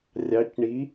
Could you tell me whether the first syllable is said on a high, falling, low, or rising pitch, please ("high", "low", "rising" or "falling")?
rising